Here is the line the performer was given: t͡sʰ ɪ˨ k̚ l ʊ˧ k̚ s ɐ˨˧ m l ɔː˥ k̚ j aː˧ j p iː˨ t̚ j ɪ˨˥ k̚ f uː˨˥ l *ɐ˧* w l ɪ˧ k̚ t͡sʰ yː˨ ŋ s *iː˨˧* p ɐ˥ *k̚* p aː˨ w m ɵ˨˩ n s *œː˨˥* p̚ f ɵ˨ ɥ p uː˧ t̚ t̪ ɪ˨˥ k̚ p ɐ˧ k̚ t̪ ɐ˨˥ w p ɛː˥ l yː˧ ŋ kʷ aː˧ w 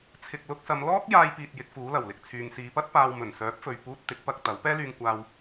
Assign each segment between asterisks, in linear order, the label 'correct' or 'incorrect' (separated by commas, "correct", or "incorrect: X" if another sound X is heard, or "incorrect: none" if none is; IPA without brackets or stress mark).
incorrect: ɐ˨˩, correct, incorrect: t̚, correct